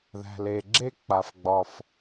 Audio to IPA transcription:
ð æ̤˩ l e˩ ɡ͡ǁ e˥ k͡p a˩ f ɡ͡b ɒ˩ f

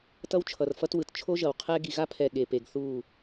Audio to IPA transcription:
t ʌ˦ w t͡ʃʰ ʌ˨ r f ʌ˦ t w ɯ˨ t t͡ʃʰ o˦ ʒ ʌ˨ w qʰ ɛ˦ ɡ i˨ ɣ a˦ pʰ ɛ˨ ɠ e˨ p e˨ ɡ θ u˦˨

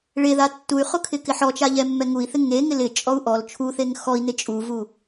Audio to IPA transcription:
ɭ e ð a tː u y̯ χ ʊ kʰ ɪ k ɪ ħ ɔ t͡ʃ a ʎ ɛ mː ɛ ŋ u i̯ θ ɪ ŋ e ŋ ɪ l ɪ t͡ʃʼ ɔ u̯ ʔ ɔ l t͡ʃʰ u θ e ŋ x ɔ i̯ n ɪ t͡ʃʼ u v u

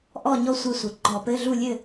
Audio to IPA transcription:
ʔ ɔ˥˨ ɲ ɔ˥˨ sʷ ɛ˥˨ sʷ ɘ˩˥ ɡ͡ǃ ɔ˧˩˧ p ɘ˧˥˧ ɮ u˥˨ lʲ ɘ˥˨

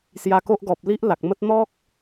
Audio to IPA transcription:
s j a˧ k o˦ ʔ ɡ ɔ˨ p̚ l i˦ ʔ l a˨ k̚ m ə˦ t̚ n̪ ɔ˦ k̚

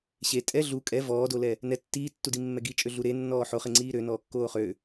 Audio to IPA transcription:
ɕ e tʼ ɛ ɮ u kʼ ɛ v ɔː d o l ɛ | n ɛ tː iː tː u d i mː ɛ ɡ i t͡ʃʼ ø ɮ u ɾ e nː ɔː ħ o χ e ŋ͡ǀ iː ɾ ø n ɔː kː oː χ ø

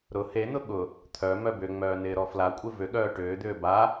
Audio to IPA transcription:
ɾ ʊ h e n̪ ʊ ɠ ʊ | t̪ʰ œ m œ b ʏ ŋ͡m œː n ɪː ɾ ɔ f l a kʷʼ ɪ v ʏ ɠ œː ʈ ʏː d̪ ʏː b a

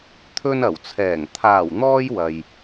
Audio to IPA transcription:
t̪ʰ ɵ˧ n ɐ˨˩ w t͡sʰ ɛː˨˩ ŋ t̪ʰ aː˨˩ w n̪ ɔː˧ j w ɐ˨ j

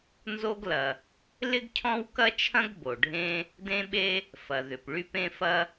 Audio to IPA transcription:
n z o˥ ɡ l ɐ˩ | l ɪ˥ ɡ cʰ ɔ̃˥ w k ɐ˥ t͡ʃʰ ɐ̃˥ ɡ b o˩ ɖʱ ẽ˥ | d ẽ˥ ɓ e˥ | f ɐ˩ ð ʏ˩ p ɭ y˥ p ẽ˥ f ɐ˥

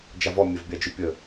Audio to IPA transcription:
d͡ʒ a v ɔ mʲ ɛ v bʲ a d͡ʒ ʉ pʲ ə

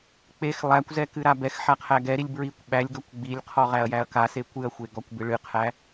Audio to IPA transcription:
k͡p e x lˠ æ kʷ z ɛ k ɨ ɾ a b ɛ x ħ a qʰ æ ɡ ɛ ɾ i lʲ b ɹ i kʷ ɓ æ lʲ ɡ ɔ kʷ ɡ͡b i lʲ qʰ ɔ ʁ æ ɐ̯ j æ ɐ̯ k a s e kʷ ɨ ɐ̯ xʷ e ɡ ɔ kʷ b ɨ ɭ ɨ qʰ æ

